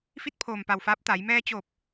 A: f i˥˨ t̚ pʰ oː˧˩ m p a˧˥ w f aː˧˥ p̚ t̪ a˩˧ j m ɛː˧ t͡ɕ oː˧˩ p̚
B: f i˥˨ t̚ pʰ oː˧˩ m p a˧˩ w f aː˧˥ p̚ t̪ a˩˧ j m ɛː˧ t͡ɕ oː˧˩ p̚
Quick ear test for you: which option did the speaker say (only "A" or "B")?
B